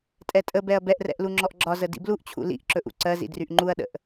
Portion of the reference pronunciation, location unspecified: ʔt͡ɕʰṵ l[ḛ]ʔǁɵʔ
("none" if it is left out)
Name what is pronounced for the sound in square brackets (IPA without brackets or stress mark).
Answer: ḭ